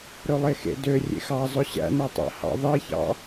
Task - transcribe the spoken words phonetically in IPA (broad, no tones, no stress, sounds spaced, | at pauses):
ɾ ɵ lˠ e x ḛ d ø rʲ ḛ x ɑ zˤ ɵ ɕ æ̰ n æ tˤ æ̰ h ɑ̰ ðˤ i ç ɑ̰